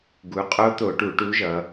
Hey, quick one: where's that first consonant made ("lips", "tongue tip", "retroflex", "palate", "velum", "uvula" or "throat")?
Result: velum